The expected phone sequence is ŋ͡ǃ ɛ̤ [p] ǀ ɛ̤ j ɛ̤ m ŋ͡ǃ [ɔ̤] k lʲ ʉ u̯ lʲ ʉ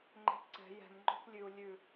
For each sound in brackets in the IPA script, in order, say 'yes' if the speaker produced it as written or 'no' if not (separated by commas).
yes, yes